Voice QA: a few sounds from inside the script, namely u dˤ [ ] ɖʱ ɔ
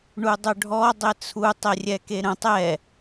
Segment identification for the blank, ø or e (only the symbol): ø